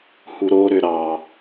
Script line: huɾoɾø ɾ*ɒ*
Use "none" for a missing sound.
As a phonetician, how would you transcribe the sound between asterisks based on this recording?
ɑ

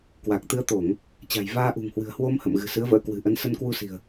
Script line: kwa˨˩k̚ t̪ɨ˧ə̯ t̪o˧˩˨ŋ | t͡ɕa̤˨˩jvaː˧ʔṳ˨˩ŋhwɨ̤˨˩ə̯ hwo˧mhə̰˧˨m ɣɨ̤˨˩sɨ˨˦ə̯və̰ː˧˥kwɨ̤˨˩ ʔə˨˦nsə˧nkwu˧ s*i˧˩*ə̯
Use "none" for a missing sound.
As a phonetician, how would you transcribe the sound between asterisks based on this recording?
i̤˨˩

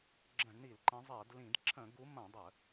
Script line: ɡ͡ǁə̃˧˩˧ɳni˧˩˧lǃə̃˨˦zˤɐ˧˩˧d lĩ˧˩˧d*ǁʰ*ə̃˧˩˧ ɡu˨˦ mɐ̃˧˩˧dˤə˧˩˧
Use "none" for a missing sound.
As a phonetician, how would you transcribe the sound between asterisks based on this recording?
ǁʰ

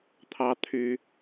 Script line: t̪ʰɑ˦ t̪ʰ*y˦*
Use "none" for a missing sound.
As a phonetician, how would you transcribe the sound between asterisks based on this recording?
y˦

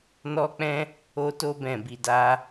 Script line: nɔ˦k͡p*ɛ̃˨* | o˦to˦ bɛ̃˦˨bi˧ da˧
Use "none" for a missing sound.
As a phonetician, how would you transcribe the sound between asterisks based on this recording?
ɛ̃˦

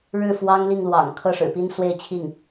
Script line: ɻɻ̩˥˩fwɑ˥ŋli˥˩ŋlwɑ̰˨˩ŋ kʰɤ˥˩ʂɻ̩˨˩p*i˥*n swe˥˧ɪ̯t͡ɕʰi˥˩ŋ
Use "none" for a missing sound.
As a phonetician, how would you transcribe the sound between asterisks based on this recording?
i˥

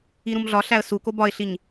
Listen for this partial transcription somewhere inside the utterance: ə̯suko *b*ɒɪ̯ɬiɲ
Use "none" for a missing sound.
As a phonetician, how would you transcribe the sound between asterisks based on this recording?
b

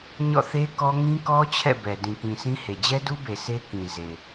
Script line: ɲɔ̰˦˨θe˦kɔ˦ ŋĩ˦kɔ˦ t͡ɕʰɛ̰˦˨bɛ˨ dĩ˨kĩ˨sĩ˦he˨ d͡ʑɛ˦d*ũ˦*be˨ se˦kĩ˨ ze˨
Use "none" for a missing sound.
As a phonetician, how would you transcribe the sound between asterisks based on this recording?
u˦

